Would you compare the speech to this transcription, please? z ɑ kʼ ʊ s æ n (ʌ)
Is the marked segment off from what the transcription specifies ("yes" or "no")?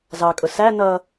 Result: no